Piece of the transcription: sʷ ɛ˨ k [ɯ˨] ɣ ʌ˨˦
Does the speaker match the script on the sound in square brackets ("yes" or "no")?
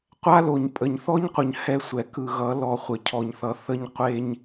yes